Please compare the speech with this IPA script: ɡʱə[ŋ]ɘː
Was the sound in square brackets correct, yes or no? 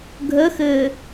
no